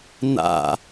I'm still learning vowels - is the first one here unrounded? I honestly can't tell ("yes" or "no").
yes